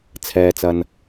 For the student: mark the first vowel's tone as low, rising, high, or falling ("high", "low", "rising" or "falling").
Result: low